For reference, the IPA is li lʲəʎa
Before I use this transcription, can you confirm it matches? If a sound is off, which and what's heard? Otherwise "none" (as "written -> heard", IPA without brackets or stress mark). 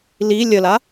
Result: ʎ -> l